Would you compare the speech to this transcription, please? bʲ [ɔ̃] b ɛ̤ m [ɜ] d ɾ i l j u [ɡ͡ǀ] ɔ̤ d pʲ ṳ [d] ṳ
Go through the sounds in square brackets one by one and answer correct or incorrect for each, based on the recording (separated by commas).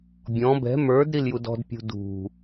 correct, incorrect, incorrect, correct